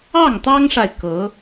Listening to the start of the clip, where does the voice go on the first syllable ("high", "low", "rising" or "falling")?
falling